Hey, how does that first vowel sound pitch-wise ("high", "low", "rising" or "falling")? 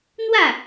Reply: falling